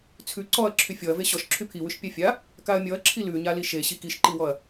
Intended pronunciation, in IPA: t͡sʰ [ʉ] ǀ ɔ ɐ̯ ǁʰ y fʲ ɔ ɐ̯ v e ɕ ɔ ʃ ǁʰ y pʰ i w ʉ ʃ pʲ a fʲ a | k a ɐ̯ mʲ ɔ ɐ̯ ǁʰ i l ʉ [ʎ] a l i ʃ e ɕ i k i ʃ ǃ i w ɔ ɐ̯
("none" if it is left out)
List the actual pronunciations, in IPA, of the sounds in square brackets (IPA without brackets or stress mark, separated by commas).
ʉ, ɲ